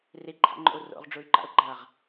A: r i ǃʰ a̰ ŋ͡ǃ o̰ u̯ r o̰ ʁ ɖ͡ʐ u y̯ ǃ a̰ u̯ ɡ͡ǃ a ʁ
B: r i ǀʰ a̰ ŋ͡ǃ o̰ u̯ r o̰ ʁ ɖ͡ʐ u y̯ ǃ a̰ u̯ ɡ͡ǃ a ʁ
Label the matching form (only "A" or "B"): A